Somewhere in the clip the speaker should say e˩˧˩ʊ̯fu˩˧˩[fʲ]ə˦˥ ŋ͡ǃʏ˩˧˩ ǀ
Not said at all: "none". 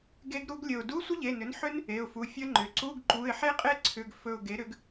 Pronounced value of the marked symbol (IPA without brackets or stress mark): fʲ